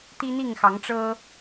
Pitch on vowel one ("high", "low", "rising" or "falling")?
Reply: high